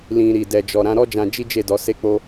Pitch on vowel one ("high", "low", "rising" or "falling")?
low